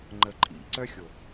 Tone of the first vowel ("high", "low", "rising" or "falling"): low